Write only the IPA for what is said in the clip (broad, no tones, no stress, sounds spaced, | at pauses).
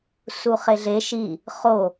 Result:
s u χ e ɮ e ʃ i | χ o